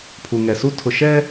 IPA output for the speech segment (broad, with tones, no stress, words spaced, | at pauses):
pʰu˨ŋɛ˨su˦ tʰʊ˨ʃɛ˦